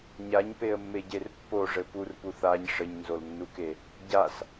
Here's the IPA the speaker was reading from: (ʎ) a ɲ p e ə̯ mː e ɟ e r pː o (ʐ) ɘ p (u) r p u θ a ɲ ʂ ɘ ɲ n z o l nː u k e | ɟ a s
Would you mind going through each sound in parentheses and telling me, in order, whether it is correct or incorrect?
incorrect, correct, correct

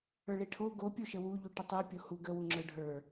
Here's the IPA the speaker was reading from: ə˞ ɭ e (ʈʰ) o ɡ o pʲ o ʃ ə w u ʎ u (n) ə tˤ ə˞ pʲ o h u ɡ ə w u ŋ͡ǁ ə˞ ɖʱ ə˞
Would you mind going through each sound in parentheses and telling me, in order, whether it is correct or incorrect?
correct, incorrect

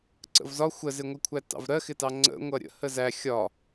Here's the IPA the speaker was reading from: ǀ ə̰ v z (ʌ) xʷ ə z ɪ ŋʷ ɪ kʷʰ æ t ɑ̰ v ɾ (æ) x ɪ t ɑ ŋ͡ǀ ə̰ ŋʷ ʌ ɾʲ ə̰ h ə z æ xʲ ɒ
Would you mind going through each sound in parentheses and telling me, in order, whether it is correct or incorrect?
incorrect, incorrect

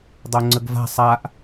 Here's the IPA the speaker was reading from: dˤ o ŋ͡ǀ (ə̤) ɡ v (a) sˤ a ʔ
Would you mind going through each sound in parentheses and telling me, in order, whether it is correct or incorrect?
incorrect, incorrect

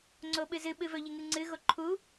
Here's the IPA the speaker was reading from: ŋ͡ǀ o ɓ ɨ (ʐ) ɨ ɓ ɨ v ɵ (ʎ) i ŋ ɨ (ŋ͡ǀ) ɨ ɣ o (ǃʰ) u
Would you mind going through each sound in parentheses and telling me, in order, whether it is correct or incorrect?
incorrect, correct, correct, correct

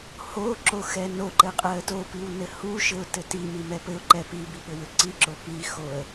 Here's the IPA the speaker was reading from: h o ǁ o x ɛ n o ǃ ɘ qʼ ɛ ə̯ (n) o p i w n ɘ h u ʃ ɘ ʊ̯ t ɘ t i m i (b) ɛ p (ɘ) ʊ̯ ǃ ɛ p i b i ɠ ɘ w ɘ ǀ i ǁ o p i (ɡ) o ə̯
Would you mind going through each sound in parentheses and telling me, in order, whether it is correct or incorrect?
incorrect, incorrect, correct, incorrect

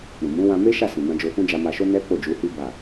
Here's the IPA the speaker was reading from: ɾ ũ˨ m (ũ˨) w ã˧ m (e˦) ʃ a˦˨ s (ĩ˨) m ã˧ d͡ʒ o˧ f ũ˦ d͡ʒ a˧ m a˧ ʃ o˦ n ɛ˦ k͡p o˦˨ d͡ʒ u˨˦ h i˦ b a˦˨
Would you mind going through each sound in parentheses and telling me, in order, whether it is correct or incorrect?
incorrect, correct, correct

